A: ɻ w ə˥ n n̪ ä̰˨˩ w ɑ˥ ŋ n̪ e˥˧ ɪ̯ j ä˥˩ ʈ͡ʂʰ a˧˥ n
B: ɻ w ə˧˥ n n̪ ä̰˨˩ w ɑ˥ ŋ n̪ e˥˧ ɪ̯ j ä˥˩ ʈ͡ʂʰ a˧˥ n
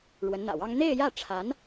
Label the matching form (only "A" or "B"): B